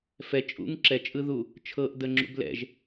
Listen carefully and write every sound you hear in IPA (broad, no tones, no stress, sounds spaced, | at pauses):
f ɛ t͡ʃʼ ṵ ŋ ǁ ɛ t͡ʃʼ ɯ ð u | t͡ʃʰ ɤ ʔ d ə ŋ͡ǁ ṵ b l ɛ̰ ʒ